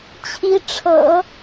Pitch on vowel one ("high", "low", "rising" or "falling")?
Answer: rising